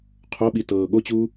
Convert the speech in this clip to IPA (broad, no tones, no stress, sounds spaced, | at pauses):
qʰ o ɓ i t ɤː ɠ o t͡ɕ uː